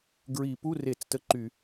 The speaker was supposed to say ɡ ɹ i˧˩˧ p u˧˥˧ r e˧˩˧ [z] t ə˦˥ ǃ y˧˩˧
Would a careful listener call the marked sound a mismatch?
yes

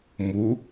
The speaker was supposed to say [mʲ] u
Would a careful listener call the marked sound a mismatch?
yes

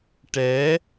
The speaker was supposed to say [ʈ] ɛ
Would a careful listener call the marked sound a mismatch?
no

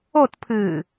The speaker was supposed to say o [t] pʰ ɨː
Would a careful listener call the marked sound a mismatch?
no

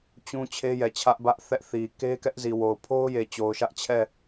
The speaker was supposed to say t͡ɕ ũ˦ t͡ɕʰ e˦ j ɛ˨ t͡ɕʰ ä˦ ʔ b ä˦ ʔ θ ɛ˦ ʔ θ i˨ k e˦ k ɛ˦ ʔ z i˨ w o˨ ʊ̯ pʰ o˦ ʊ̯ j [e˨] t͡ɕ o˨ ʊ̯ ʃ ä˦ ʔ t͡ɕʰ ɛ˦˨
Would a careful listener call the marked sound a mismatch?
no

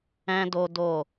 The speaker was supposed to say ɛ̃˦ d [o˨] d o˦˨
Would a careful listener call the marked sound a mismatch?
yes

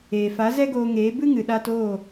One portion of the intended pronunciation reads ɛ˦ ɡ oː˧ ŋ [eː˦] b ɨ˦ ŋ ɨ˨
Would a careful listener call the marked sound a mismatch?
yes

